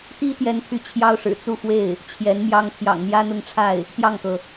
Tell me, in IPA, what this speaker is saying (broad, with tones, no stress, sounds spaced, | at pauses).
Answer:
t̪ i˥ t̪ j ɛ˥ n t̪ʰ y˥˩ t͡ɕʰ j ɑ˥ ʊ̯ ʂ ɻ̩˨˩ t͡s u˥˧ f w e˥˩ ɪ̯ | t͡ɕʰ j ɛ˧˥ n m j ɑ˥ ŋ t̪ʰ j ɑ̰˨˩ ŋ n̪ j ä˥ n̪ ʊ˥˧ ŋ ʈ͡ʂʰ a˥˩ ɪ̯ | t̪ j ɑ˥˩ ŋ k ɤ˩